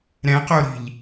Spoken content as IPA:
ɾɛ̃qoɾi̤ʎ

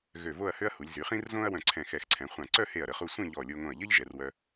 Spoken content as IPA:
ɣø˧˩ vo˥˧ɐ̯hø˥ɐ̯hu˩˧lʲ zy˩˧χĩ˥rzõ˥ɐ̯wœ̃˧˩ ǀʰɛ̃˧˩xɛ˧˩xǀʰɛ̃˩˧χʷã˧˩ ǀœ˥˧he˧˩ɐ̯ɾə˩˧χu˧ sʷẽ˥˧ʎɔ˧˩lʲo˧ŋõ˧˩ɐ̯ ʎə˥ʎ ʒɛ˩˧rwœ˧

